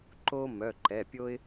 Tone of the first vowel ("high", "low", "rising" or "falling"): high